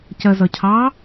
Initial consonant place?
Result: palatal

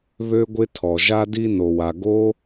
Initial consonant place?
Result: labial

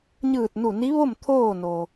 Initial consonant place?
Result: palatal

